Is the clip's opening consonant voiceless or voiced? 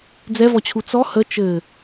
voiced